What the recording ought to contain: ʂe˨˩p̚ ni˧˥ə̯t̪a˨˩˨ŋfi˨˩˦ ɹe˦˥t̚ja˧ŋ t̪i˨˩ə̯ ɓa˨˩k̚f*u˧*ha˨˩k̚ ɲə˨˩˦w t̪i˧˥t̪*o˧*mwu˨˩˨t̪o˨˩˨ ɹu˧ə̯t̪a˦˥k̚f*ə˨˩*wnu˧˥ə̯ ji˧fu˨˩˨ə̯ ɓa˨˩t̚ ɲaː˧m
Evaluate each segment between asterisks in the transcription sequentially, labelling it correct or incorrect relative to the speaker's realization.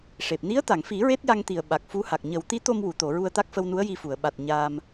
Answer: incorrect: u˧˥, correct, incorrect: ə˧

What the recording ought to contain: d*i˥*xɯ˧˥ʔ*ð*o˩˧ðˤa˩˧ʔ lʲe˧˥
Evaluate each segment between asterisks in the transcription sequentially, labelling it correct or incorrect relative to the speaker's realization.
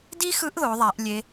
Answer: correct, correct

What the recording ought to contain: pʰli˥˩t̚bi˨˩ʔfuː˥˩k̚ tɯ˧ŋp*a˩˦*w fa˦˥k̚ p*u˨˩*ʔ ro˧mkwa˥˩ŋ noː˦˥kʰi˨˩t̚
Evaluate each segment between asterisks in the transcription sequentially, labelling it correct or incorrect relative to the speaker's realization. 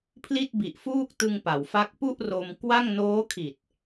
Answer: correct, incorrect: u˥˩

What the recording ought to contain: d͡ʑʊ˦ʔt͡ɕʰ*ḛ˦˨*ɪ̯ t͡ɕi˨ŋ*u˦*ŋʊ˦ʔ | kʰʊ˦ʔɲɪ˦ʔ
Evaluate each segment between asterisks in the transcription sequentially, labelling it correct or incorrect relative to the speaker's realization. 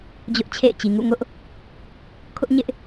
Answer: correct, incorrect: ṵ˦˨

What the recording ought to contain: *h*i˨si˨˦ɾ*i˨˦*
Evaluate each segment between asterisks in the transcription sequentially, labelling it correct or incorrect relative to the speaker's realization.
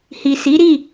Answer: correct, incorrect: i˦˨

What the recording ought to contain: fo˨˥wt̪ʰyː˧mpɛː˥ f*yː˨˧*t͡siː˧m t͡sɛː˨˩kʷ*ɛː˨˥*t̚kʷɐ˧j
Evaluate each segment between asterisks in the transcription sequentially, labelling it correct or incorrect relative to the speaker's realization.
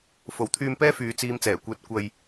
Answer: correct, incorrect: ɛː˧

